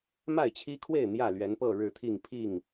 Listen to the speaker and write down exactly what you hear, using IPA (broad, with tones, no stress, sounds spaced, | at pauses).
m a˥˨ ɪ̯ t͡ɕʰ i˦ kʰ w e˥˨ ɪ̯ n̪ j ä˥˨ l ɥ ɛ˨˦ n p ɤ˥˨ ɻ ɻ̩˥˨ t̪ʰ i˥˨ ŋ pʰ i˥˨ ŋ